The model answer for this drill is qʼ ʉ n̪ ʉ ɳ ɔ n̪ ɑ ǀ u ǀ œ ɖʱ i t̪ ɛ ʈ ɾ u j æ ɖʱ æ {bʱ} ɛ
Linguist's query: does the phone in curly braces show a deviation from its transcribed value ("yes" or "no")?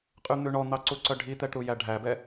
yes